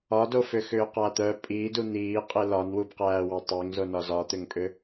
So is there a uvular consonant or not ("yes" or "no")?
yes